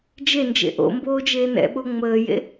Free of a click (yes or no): yes